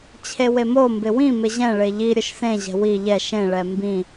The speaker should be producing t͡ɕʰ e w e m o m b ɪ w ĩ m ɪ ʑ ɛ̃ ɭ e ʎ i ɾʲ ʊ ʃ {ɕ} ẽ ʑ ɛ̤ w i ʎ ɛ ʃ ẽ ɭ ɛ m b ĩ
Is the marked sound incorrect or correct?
incorrect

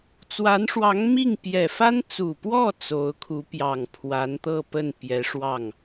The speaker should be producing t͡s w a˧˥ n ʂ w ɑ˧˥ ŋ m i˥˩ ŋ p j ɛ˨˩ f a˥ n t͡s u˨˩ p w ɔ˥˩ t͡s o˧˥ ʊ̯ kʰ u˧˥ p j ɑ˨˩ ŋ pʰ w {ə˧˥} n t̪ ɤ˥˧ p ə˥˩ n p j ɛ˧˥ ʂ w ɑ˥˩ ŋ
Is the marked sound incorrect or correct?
incorrect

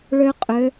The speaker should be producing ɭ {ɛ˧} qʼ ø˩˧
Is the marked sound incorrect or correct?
incorrect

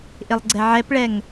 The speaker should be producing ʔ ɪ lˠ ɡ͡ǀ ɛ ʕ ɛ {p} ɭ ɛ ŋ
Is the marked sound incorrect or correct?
correct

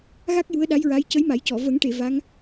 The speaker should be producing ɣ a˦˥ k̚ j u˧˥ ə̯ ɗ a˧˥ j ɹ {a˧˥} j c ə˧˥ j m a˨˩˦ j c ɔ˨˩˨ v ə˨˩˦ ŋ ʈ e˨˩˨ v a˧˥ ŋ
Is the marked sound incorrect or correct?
correct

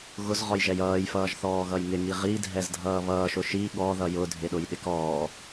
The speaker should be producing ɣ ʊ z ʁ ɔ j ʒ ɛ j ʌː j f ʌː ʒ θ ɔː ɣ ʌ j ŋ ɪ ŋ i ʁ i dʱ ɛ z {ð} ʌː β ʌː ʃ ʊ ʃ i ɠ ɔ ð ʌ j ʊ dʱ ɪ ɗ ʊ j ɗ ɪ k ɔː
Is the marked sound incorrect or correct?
incorrect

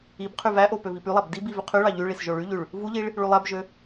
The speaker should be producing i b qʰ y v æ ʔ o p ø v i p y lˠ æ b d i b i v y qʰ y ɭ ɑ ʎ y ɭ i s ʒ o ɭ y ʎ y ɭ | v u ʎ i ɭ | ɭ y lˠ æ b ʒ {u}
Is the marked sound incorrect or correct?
incorrect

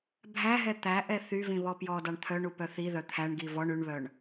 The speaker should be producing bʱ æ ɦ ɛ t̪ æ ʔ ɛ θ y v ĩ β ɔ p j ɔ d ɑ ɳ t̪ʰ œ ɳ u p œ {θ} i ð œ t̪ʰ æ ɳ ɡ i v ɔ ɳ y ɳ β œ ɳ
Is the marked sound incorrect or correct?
correct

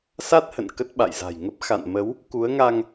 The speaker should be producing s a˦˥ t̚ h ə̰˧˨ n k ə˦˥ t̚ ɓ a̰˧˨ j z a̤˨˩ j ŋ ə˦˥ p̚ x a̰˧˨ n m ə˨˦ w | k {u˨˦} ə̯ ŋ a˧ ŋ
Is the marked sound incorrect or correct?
correct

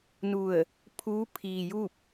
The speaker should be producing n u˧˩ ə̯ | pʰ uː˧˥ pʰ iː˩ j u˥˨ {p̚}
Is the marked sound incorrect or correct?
correct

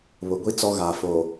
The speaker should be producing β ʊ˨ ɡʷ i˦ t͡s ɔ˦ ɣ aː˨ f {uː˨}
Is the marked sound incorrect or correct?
incorrect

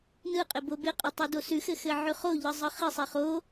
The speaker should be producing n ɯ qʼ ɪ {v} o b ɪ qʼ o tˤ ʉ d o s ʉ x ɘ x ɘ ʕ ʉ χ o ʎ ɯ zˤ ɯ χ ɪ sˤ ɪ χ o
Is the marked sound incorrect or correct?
incorrect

